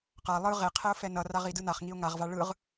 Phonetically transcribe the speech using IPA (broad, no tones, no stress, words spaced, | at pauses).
qa lˠɯ ʁeqʰɛʊ̯fɛ nʌraʁidɯ naχŋiʊ̯ ŋaʁva ɭɯʁ